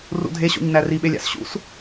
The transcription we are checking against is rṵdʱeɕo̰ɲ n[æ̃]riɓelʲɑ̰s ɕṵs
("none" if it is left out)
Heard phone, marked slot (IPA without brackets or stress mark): æ